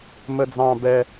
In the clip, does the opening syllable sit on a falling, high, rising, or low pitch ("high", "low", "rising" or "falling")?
low